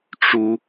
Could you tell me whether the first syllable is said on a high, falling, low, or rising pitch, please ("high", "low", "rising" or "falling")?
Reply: high